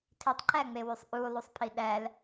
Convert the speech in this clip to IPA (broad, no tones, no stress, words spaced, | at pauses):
tʰitˤǃæŋ͡mewysˤ ʔulˠusˤpʰi ɗæl